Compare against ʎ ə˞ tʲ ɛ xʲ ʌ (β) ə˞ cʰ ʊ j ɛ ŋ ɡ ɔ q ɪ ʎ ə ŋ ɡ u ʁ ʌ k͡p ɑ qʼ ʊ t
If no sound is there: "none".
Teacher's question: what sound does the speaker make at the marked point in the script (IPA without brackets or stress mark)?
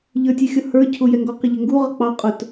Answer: h